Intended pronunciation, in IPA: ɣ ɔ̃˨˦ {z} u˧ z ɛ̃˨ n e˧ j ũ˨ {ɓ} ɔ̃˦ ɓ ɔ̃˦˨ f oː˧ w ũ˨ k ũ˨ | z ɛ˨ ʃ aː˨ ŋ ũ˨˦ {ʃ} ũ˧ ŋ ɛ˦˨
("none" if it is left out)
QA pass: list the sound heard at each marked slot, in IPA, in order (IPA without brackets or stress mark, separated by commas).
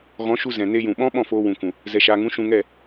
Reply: ʃ, ɓ, ʃ